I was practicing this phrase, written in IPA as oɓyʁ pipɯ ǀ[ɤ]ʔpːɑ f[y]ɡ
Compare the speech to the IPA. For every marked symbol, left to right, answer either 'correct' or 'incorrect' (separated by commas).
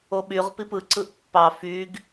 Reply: incorrect, correct